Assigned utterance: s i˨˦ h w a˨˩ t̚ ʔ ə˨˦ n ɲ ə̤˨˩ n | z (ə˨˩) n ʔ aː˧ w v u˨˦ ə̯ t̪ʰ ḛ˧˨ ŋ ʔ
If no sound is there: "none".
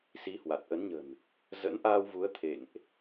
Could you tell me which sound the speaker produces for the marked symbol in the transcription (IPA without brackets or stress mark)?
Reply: ə̰˧˥